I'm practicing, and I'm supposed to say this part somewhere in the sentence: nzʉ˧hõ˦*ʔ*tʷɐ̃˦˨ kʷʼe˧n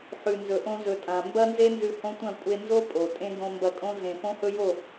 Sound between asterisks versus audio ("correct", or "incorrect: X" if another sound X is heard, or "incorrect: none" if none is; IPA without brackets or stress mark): incorrect: none